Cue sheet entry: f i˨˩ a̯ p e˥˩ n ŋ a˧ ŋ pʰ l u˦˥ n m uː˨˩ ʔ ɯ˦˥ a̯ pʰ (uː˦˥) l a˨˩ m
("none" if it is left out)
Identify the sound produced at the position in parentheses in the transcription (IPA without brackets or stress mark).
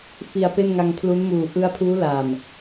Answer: uː˦˥